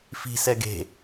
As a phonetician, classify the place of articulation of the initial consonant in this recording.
labial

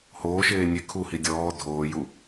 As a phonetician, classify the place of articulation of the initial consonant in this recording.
glottal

